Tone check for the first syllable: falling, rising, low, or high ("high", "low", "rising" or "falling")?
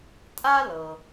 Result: high